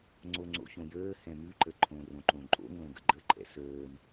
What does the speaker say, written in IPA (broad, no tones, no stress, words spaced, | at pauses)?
ŋ͡ǀoŋ͡ǀo̰çõ jəː hɛ̃mʉǃə ǃʰõ rõǃõǃʼo̰ŋlõ ɡə̰ɡ͡ǃəǃʼɛ̰ səːm